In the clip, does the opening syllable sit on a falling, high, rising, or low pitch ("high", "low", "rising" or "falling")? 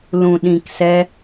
low